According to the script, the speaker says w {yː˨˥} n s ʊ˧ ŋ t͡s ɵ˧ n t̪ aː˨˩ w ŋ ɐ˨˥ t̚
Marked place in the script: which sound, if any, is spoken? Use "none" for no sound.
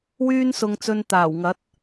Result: yː˥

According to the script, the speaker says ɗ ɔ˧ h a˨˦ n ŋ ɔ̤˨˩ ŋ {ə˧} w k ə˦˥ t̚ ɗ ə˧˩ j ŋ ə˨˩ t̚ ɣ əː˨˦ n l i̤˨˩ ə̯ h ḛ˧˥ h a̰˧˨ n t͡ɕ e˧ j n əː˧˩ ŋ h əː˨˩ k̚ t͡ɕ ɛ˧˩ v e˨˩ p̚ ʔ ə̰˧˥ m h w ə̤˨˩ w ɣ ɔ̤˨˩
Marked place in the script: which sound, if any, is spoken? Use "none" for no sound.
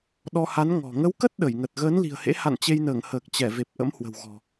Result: ə˨˦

